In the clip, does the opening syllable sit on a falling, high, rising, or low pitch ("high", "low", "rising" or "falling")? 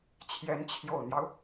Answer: rising